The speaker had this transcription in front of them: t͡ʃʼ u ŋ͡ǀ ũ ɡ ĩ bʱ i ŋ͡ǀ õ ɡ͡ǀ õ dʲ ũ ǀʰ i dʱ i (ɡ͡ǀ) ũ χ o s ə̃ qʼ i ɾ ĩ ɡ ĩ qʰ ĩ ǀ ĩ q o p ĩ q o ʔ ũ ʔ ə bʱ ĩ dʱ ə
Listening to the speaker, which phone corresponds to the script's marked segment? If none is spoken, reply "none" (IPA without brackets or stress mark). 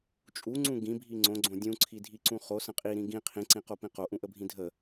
ǀ